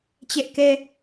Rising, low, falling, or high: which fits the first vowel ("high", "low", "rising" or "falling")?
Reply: high